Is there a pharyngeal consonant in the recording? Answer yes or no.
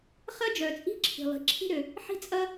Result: yes